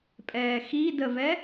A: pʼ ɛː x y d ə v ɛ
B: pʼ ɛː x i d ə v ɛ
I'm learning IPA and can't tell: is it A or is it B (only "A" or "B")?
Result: B